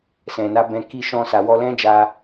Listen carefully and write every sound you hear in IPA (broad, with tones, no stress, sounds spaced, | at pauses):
s ɛ̃˨ n a˨˦ b ɛ̃˧ k i˧ ʃ ɔ̃˧ s a˨ w ɔ˧ l ɛ̃˦ d͡ʒ a˧